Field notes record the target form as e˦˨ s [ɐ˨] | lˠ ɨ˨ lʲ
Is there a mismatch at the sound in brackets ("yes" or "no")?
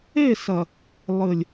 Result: no